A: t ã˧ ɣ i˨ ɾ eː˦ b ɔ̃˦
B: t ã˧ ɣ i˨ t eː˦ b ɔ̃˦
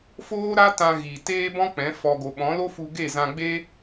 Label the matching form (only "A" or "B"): B